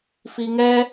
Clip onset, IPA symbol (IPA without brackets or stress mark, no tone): f